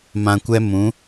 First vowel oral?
no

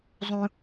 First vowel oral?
no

